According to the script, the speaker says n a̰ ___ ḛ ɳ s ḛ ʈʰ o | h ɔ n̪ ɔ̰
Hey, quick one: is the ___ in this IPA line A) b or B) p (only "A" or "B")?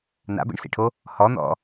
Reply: A